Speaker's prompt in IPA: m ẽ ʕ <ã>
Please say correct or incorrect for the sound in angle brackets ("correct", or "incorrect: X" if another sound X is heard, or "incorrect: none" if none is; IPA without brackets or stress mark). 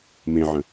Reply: incorrect: ə̃